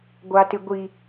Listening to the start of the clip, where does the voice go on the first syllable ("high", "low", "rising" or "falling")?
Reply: high